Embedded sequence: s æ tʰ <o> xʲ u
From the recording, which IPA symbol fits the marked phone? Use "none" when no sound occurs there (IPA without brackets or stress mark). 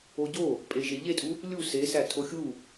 o